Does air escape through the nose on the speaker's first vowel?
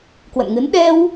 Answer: no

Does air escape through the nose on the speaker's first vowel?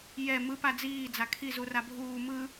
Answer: no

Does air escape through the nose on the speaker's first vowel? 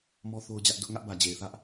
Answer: no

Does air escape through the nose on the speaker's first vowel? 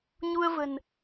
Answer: no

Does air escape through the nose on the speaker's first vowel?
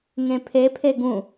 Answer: yes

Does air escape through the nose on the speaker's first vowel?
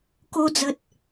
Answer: no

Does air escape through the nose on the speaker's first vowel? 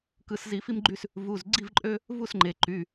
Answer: no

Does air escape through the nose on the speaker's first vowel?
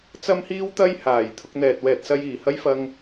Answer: no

